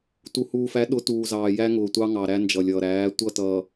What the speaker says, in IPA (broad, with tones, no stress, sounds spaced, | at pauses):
t u˨ h uː˨ f æ˨˦ ɗ ʊ˨˦ t uː˨ z ɑː˨ j æ˦ ŋ ʊː˨ tʷ ɑ˦ ŋ ɑ˨ ɾ æ˦ n d͡ʒ ʌ˨ lʲ ʌː˨ ɾ æː˨˦ tʷ ʌ˦˨ t ʌː˨